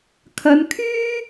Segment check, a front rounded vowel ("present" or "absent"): present